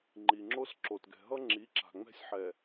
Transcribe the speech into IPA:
ŋ͡ǃ i˨ ŋ͡ǁ o˦ s ǁ o˨ t ɡ ɛ̤˨ ɦ ʌ˦ ŋ͡ǁ i˨˦ ǁ a̤˨ ŋ͡m ɛ̤˦ sʲ ħ ɛ˨

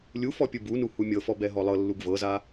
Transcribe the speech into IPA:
lʲ u f ɔ pʲ ɯ b u n u h u mʲ ɤ f ɔ b ɛ ɦ ɔ lˠ ɤ lː u ɡ v ɤ z a

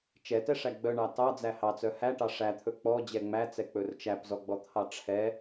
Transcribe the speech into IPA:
t͡ʃ ɛ t ɛ ʂ æ ɡ͡b œ ɳ ɑ t ɑ d͡z æ h ɑ t͡s œ h æ ʈ ɑ ʂ æ t̪ʰ ɵ k͡p ɔ d͡ʑ ɛ ŋ͡m æ t͡s ɛ k͡p ɵ r t͡ʃ æ p z ɔ ɡ͡b ɔ t̪ʰ ɑ ʈ͡ʂʰ ɛ

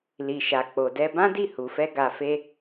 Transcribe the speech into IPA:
l i˨ ʃ a˨ k͡p o˨ d ɛ˧ b ã˦ d i˦˨ h u˨ f ɛ˧ ɡ a˧ f e˦

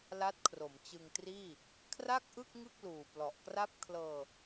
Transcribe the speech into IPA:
l a˦˥ t̚ kʰ r o˩˦ m t͡ɕ ɯ˧ ŋ t r iː˥˩ | kʰ r a˥˩ k̚ ʔ ɯ˥˩ k̚ ŋ ɯ˥˩ k̚ l uː˨˩ p l ɔ˨˩ ʔ k r a˥˩ p̚ kʰ l ɤː˧

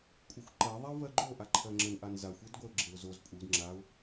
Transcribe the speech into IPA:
kʷʼ e xʷ ǃ ɜ ðˤ a ʊ̯ v ɜ ɡ͡ǃ o ʔ a ǃʰ ɜ ŋ͡ǁ ə n ʔ a n z a xʷ e d ɡʷ ɛ ʊ̯ ɡ͡ǁ e ʊ̯ z o z pʼ u d ŋ͡ǁ a ʊ̯

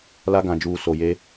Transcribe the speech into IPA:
l a˦ ɡ ã˨ d͡ʒ uː˨ s o˨ j e˦

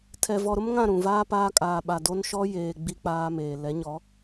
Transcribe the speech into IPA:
tʰ ɛ˨ v ɔ˨ ɾ ʊ˦ m ŋ ã˦˨ ɾ ũ˨ v aː˦ p aː˦ kʼ aː˨ ɓ a˨ d o˦ n ʃ ɔ˦ j eː˨ ɡ͡b i˦ k͡p aː˦ m eː˨ l ɛ˨˦ ɲ ɔ˨˦

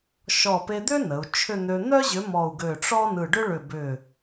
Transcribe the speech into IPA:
ʃ ɔ˧˩ p e˧ d̪ ʏ˥ n ə˩˧ u̯ t͡ʃʰ ʏ˥˧ n̪ ø˧ n̪ œ˥ ʑ ʏ˨˥ m ɔ˧˩ u̯ ɡ ø˧˩ ʈ͡ʂ ɔ˥ n ɯ˧˩ ɖ ʏ˥ ɭ ʏ˧˩ b ʏ˧˩

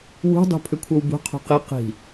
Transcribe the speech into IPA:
w ṳ dˤ ṳ pʰ ʏ kʷʰ ɤ w b ṳ qʰ ṳ q i q i̤

